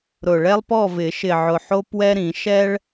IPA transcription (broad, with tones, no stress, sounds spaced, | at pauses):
ɾ ʊ˨˩ ɭ ɛ˦ lˠ p ɔ˥˨ v ɪ˨˩˦ ʃ ɪ˨˩ ʕ ʊ˨˩ ħ o˦ p w ɛ˦ ɾ ĩ˨˩˦ ʃ ɛ˦ ɭ